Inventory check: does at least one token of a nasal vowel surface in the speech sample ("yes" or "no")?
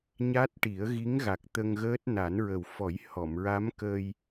no